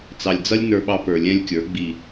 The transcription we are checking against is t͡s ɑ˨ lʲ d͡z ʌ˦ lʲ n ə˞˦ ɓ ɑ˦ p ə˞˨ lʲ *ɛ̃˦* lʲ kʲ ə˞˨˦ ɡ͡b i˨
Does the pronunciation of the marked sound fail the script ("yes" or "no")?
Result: no